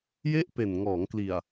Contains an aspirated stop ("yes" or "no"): no